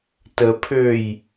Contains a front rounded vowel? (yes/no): yes